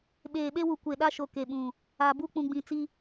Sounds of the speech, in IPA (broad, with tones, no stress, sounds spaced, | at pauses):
ɓ eː˨ ɓ e˦ w u˨ kʷ e˨ ɗ a˦ ʃ o˨ k e˨ ɓ ũ˨ | a˨ b u˦ k͡p ũ˨ ɡ͡b ĩ˨ t͡s i˦